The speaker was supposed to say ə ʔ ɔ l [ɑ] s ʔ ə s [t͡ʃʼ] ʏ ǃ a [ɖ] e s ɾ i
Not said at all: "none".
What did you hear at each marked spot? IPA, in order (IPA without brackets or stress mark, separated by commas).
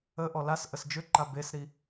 a, d͡ʒ, b